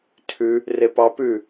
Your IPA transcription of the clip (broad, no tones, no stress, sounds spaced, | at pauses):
tʰ ʉ | r e p ɑ p ʉ